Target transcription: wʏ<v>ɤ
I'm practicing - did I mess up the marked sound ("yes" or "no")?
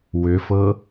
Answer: yes